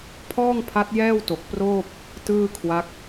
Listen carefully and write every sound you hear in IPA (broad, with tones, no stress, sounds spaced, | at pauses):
pʰ ɔː˥˩ ŋ pʰ a˦˥ t̚ j ɛː˥˩ w t o˨˩ k̚ p r oː˥˩ p̚ | t ɯː˥˩ kʰ w a˦˥ k̚